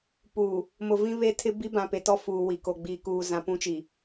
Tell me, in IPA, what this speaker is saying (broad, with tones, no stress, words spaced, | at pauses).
puː˨ | mʊ˨vĩ˦βe˦tʰɪ˦ bi˦bã˨pe˨tɔ˦ fuː˨wi˨ko˨ ɡ͡biː˨kuː˨ zã˨pũ˦t͡ʃi˨